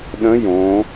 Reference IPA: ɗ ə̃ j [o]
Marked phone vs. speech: incorrect: õ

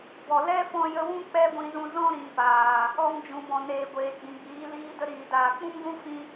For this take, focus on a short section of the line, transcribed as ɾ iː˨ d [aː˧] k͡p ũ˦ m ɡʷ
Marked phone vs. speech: incorrect: aː˨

